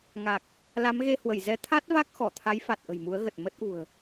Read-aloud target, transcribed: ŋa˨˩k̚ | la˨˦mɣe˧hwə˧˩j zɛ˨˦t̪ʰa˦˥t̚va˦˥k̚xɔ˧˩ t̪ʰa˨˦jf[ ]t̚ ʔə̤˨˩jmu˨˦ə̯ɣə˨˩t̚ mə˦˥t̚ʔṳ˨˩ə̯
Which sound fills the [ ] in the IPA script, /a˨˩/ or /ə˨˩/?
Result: a˨˩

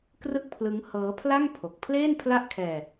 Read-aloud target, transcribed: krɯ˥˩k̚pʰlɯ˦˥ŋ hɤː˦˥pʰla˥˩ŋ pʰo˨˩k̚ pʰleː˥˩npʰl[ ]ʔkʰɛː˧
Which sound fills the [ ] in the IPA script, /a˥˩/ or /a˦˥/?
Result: a˥˩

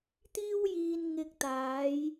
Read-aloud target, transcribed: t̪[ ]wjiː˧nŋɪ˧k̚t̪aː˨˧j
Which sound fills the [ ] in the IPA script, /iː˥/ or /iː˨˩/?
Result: iː˥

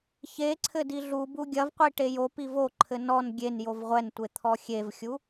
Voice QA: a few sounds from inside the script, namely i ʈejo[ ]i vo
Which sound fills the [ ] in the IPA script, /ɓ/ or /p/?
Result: p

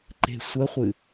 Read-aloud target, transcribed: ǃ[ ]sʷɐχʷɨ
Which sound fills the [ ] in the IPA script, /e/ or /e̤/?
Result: e̤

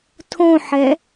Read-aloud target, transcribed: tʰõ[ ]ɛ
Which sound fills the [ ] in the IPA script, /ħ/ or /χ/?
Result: ħ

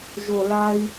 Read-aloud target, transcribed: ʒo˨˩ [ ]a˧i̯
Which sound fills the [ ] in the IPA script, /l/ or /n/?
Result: l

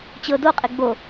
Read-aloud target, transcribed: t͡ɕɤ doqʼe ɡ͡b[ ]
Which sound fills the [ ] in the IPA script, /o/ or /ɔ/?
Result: o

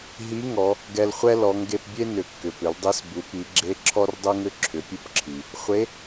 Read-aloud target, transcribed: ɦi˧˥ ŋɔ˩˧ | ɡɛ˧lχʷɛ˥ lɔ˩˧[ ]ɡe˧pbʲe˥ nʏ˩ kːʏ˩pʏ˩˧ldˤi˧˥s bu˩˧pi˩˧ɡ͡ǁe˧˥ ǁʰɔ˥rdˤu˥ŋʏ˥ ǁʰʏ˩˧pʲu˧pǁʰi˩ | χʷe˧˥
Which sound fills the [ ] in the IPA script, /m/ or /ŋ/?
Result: ŋ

